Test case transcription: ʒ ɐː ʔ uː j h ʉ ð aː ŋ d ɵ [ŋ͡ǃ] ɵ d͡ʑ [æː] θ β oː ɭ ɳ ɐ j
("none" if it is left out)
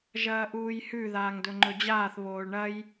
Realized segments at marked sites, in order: ŋ͡ǃ, aː

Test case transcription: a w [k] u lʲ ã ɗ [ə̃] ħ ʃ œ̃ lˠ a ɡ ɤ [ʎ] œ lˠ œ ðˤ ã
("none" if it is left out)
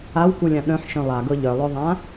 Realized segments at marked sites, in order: k, œ̃, ʎ

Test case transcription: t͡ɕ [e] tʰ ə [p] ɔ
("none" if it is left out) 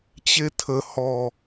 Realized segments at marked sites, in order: e, h

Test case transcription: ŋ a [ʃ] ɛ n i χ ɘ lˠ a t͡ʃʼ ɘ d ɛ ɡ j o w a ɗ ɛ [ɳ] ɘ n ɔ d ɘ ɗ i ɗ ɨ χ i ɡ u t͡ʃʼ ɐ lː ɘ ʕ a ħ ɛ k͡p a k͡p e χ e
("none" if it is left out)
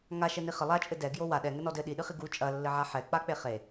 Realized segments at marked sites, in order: ʃ, ŋ

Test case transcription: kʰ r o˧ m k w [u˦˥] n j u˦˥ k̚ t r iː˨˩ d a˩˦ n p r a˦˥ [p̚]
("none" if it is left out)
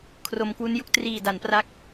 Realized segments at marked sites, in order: u˦˥, k̚

